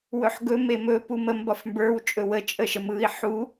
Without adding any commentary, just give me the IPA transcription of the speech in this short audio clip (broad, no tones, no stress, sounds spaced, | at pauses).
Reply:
w ɵ ħ ɡ ɵ m e m ɵ p u m ə m b ɒ f m b ə˞ w t͡ʃʼ ɵ w ə t͡ʃʼ ə ʃ ə m ɯ i̯ ħ u